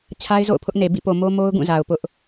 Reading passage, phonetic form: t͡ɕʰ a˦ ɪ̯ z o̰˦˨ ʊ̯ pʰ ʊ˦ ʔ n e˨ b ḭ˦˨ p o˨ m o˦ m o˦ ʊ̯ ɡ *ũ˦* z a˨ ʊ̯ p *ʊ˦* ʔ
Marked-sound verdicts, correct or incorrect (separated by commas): incorrect, correct